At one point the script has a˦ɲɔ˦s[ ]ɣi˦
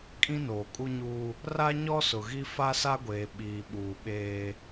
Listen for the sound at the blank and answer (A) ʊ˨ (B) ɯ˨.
A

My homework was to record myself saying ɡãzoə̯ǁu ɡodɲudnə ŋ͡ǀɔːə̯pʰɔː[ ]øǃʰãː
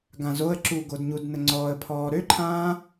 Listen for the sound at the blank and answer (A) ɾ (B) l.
A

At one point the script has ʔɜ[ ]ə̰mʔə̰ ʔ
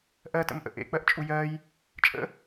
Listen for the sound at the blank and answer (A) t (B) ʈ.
A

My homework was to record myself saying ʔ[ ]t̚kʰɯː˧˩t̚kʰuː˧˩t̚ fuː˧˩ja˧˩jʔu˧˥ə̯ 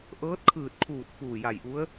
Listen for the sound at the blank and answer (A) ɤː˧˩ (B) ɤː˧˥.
B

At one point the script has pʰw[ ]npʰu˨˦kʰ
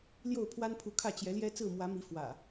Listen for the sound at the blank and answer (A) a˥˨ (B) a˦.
B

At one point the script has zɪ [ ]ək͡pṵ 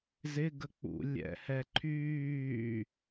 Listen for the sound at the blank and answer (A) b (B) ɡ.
B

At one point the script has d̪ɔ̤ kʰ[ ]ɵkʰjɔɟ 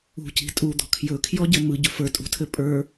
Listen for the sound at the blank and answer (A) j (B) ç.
A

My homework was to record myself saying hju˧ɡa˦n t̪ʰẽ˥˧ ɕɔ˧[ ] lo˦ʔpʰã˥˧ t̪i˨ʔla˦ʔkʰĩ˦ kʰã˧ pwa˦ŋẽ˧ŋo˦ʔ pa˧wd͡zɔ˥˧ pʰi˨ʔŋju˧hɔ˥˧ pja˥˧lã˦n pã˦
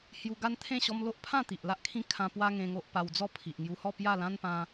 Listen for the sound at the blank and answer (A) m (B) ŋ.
A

